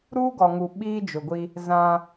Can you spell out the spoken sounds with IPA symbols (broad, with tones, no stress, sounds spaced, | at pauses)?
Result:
ɾ uː˦ ɡ ɔ˨ ŋ u˨ ɓ iː˦ d͡ʒ ʊ˨ ɡʷ i˦ | z ã˦